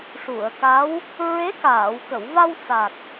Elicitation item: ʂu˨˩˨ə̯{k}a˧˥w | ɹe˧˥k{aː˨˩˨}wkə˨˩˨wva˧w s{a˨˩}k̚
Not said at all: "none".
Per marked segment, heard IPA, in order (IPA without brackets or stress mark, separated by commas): k, aː˨˩˨, a˨˩